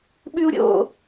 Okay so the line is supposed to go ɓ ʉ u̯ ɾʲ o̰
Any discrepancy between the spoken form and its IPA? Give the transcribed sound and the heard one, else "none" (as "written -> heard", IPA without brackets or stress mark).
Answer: none